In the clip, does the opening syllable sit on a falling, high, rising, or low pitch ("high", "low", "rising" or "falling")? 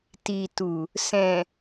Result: low